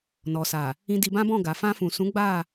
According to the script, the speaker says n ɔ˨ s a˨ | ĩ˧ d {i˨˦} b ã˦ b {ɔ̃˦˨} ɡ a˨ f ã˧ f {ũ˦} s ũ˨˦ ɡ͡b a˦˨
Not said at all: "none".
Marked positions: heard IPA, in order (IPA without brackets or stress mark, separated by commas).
i˧, ɔ̃˦˨, ũ˨